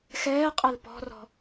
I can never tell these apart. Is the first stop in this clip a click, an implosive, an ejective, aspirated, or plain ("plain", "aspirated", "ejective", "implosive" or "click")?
ejective